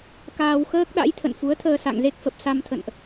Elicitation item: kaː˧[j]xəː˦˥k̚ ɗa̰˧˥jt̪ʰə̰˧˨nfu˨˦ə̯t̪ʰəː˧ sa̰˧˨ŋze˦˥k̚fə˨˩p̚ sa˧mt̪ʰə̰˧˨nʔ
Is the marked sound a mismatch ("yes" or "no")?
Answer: yes